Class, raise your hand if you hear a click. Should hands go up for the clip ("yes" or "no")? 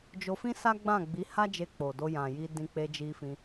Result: no